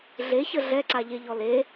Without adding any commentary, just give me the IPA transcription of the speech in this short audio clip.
ɮ e ç ə ɮ ɛ ǀ a ʎ e ʎ ɔ l e

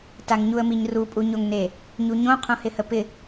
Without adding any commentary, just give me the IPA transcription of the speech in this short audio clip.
t a ŋ ɲ u ə̯ m i ɲ r u pʼ u ɲ o ŋ n e | ɲ u ɲ õ qʰ õ h ɪ h ə p ɪ

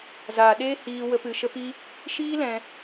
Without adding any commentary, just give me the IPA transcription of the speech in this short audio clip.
z aː˨ ɗ eː˦ h iː˧ w ə˧ p ɨ˨ ʃ ə˧ p i˧ | ʃ iː˦ l ɛ̃˧

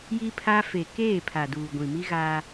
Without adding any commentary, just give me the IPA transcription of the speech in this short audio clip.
j i˦ pʰ a˦ f e˨ k eː˦˨ pʰ a˨ d uː˨ ɡʷ ĩ˨ m i˦ ɣ a˦

